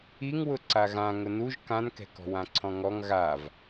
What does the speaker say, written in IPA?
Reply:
i ŋ w ʊ ǀ a ɣ ã ŋ ʊ n u ʒ k ã n k ɛ̤ k ɔ̤ w ã ǀʰ ɔ̃ ŋ ɔ ŋ ɣ a v

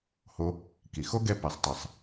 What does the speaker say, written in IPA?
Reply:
h o˧ | k i˩ x o˥ ɡ ɛ˧ p ɛ˩ sˤ t ɨ˩ sˤ

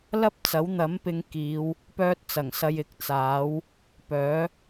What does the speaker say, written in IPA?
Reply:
l ɐ˥ p̚ t͡s ɐ˨˥ w n̪ ɐ˨˥ m p ɪ˨˧ ŋ k iː˨˧ w | p œː˥ t̚ t͡s ɐ˨˩ ŋ s ɐ˧ j ɪ˨˥ k̚ t͡s aː˨˥ w | p œː˨˥

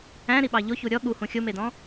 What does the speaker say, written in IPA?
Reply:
æ̃ ɾ i ɓ ɑ ʎ o ç u ɾʲ ɔ ɠ u h ũ xʲ o m e d ɔ̃

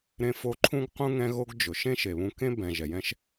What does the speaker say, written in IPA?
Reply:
ɾ ẽ˧ f o˧ ǃʰ ũ˥ ɡ q ũ˥ ŋ ɛ̃˥ ɣ o˥ ɡ d͡ʒ ʊ˩ ʃ ẽ˥ ʃ e˩ β ũ˧ k ẽ˥ b ɛ̃˩ ʒ ɛ˩ j ɛ̃˥ ʃ

